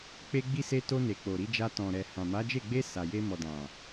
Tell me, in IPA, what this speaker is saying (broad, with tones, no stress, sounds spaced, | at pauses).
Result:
k͡p e˧ ɡ͡b i˧ s e˧ t o˧ n e˨ k͡p o˨ ɾ i˧ d͡ʒ a˧ t ɔ̃˨ ɾ ɛ˨ h ã˨ m a˨˦ d͡ʒ e˦˨ ɡ͡b e˧ s a˨ j e˧ m ɔ˨ d ã˨